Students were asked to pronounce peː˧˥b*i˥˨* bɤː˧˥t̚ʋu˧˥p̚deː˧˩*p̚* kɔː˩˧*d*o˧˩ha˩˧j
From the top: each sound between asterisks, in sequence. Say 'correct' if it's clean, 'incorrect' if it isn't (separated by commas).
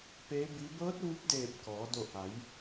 incorrect, correct, correct